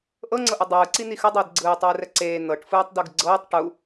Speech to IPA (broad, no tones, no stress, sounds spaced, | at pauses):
ʔ ɤ ŋ͡ǀ ɤ ʔ ɯ dˤ ɯː ǀ i n̪ i x ɯ dˤ ɯː d ɡ͡ǀ ɯː tˤ ɯː r ɛ ǀ eː n̪ ɤ ʈ f ɯː tˤ d u ɡ ɡ͡ǀ ɤː tˤ ʈ u